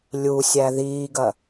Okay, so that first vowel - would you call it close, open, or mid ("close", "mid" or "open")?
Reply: close